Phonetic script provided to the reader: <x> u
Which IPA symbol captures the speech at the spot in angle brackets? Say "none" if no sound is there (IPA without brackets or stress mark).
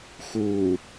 x